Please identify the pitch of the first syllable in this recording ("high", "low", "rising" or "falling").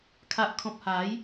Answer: low